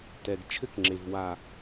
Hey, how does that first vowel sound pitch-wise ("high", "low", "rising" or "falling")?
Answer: low